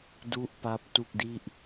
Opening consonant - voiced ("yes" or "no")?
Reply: yes